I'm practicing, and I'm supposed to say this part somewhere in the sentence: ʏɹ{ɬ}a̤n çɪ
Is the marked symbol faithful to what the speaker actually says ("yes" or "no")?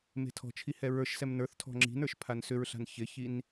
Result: yes